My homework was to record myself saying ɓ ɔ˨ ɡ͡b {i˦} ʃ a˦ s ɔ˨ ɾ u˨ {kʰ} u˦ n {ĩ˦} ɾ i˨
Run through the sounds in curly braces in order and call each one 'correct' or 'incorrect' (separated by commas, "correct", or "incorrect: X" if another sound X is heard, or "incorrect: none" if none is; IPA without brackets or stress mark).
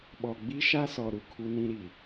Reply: correct, correct, correct